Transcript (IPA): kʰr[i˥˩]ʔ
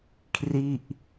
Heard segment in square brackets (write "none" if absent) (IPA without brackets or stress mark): i˥˩